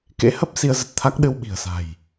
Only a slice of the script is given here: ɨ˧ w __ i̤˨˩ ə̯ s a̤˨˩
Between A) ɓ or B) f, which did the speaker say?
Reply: A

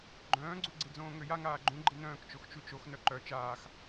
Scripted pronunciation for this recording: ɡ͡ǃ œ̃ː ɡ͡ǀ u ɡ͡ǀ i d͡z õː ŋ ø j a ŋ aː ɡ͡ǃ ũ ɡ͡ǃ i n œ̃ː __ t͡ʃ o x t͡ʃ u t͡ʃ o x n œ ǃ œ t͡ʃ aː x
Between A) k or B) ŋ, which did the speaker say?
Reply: A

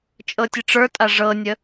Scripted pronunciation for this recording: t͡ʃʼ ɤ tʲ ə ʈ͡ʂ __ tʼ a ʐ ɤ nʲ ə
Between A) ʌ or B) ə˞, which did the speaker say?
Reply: B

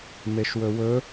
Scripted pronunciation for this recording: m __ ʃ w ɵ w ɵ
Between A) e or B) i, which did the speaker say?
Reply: A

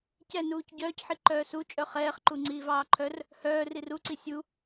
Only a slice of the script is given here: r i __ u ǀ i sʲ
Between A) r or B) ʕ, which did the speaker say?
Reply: A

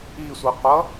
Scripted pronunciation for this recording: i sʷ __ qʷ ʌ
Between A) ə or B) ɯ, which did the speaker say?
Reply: B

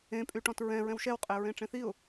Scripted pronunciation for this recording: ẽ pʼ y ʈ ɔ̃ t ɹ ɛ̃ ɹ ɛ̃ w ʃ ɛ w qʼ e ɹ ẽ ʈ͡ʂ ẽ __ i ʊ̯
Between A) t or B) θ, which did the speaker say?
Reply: B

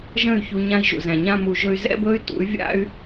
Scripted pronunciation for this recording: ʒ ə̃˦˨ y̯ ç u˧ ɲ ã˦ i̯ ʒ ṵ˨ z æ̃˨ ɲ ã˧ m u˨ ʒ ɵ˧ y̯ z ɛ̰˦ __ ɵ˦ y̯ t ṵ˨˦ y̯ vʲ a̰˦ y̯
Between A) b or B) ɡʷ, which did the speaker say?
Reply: A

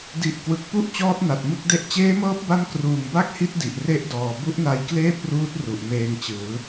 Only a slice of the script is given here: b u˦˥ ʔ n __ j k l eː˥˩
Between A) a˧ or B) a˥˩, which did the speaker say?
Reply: A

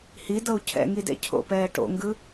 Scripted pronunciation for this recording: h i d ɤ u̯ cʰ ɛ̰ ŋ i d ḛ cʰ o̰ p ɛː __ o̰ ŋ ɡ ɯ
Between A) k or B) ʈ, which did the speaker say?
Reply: B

